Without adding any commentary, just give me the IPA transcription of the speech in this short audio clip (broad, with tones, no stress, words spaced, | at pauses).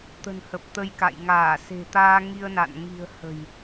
t̪ə̤˨˩nhə˨˩p̚t̪ə˧jka̰˧˨j ŋaː˧˩se̤˨˩t̪aː˧ ŋi˧ə̯na̰˧˨n ŋi̤˨˩ə̯ hə̤˨˩j